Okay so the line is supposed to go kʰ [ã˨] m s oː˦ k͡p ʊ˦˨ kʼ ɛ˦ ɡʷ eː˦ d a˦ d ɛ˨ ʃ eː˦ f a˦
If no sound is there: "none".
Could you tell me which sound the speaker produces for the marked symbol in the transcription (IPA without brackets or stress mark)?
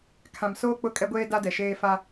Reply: ã˨